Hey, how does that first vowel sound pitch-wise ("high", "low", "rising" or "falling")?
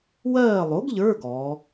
falling